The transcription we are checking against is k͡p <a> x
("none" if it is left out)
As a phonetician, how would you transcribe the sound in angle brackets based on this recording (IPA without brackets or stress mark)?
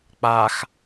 a